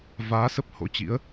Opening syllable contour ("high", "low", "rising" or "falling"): rising